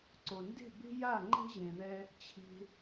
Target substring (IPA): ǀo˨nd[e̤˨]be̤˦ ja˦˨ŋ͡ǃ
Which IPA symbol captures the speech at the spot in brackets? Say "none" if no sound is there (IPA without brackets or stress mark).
e̤˦˨